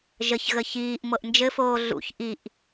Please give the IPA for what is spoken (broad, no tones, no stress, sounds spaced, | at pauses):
ʒ ə ç ɣ ə ç iː ʔ m ɤ ʔ n d͡ʒ ɘ f oː ɮ ṵ ç ʔ i ʔ